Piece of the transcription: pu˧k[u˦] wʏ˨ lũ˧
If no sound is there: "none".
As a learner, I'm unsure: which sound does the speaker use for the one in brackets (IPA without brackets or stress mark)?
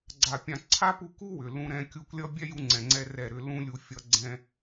u˦